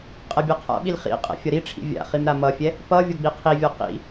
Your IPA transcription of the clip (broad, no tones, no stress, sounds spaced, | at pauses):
qʼ ɛ bʲ ɛ qʰ a̰ ɓ i l χ ḭ qʼ ɛ̰ fʲ ʌ ɾ i ʈ͡ʂʰ ḭ vʲ a̰ χ i m ɾ a m ʌ fʲ ɛ | p ʌ vʲ ʌ ɡ͡b i qʰ i vʲ ɔ q ḭ